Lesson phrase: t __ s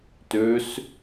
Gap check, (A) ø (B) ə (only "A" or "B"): A